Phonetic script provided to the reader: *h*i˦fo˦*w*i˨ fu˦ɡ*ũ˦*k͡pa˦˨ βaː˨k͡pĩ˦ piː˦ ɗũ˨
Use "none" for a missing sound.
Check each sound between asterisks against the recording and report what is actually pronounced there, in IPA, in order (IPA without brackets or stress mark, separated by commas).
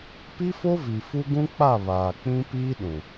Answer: p, v, ũ˦